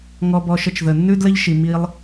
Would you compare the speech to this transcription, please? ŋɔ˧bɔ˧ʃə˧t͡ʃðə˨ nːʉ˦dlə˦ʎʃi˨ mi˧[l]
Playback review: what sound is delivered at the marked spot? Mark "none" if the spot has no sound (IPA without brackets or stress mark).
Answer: lˠ